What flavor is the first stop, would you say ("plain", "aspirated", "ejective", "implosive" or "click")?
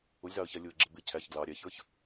click